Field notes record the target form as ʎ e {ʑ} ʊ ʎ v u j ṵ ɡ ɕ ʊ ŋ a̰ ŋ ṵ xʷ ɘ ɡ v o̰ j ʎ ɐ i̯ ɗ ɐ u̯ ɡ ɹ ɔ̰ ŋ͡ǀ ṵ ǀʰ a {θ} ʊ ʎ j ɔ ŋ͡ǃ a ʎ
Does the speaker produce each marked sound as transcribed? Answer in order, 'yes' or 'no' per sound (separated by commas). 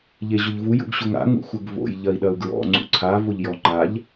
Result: yes, no